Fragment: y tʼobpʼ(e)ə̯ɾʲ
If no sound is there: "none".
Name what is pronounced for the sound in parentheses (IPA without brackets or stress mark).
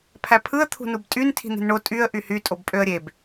ø